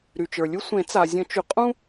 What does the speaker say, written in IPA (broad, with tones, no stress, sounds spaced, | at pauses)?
ɾ y˩ t͡ʃ ə˞˩ lʲ u˦ sʷ ẽ˨˩˦ t͡s a˩ zʲ ə̃˨˩˦ t͡ʃ y˩ qʼ ũ˦